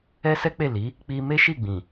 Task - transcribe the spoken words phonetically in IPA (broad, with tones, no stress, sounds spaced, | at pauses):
ɛ˦ s ɛ˦ k͡p e˦˨ l i˨˦ | k͡p i˧ m e˦ ʃ i˦˨ ɡ͡b ĩ˨